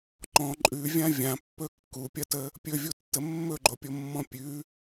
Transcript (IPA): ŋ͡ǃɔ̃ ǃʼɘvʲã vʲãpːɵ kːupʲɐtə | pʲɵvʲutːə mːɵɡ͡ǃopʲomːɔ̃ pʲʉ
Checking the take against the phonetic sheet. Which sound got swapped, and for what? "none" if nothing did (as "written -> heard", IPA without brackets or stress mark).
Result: ɘ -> ʉ